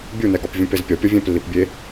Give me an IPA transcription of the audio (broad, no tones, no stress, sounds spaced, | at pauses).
bʲ u n ɛ ɡ ɒ p vʲ ũ p e z pʲ ɒ pʲ ɒ vʲ ɛ̃ p lː i p bʲ e